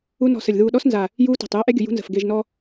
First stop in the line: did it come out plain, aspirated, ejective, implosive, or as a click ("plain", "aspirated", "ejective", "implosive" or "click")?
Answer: implosive